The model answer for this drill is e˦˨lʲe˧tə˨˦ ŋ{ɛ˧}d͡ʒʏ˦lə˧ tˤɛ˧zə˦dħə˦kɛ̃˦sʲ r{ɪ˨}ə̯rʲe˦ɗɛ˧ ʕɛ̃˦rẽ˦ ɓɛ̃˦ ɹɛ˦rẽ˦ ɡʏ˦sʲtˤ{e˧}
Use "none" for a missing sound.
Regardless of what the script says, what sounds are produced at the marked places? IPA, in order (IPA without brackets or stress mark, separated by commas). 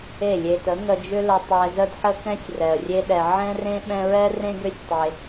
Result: ə˧, ɛ˨, e˧